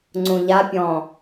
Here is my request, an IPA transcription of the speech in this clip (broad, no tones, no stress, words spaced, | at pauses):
ŋ͡ǀũʎapʲɔ̃ː